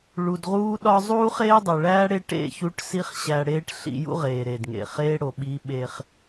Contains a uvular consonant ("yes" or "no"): yes